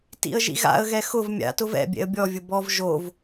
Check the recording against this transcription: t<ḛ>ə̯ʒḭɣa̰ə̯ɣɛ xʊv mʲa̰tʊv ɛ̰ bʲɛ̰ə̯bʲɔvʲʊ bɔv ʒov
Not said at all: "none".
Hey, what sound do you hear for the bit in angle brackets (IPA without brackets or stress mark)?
ḭ